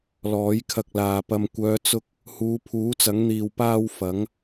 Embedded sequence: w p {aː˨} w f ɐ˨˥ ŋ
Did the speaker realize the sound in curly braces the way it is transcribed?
no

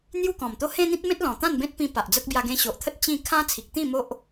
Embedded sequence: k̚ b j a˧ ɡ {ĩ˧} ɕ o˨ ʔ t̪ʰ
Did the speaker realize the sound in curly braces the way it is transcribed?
no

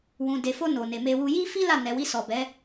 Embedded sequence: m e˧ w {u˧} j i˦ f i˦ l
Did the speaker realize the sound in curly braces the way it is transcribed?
yes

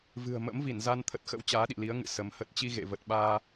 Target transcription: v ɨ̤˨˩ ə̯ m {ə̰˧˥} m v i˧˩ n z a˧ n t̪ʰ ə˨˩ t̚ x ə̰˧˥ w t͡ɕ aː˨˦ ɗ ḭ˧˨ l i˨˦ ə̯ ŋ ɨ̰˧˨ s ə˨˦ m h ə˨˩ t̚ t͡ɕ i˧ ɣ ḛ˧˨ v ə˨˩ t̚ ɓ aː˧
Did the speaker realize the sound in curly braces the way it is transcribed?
yes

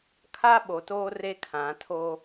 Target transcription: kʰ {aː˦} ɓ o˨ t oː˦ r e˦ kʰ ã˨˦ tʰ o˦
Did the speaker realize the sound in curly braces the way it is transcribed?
no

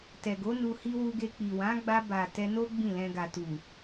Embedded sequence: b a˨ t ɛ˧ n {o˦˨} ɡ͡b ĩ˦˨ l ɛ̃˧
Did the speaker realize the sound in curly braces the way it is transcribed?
no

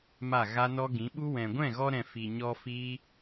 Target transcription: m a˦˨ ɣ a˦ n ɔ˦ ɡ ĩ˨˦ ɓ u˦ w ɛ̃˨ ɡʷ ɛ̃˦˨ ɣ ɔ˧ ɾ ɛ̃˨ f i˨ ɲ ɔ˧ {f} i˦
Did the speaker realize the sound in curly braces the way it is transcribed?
yes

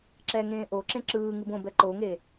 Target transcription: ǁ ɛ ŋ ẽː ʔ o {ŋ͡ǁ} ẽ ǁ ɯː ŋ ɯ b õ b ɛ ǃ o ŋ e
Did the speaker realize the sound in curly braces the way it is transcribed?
no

